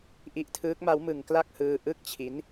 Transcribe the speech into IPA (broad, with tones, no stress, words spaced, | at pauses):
ʔi˦˥ʔtʰɯː˦˥k̚ ma˦˥wmɯ˧ŋkla˥˩k̚hɯː˧ ʔɯ˦˥k̚ t͡ɕʰi˦˥n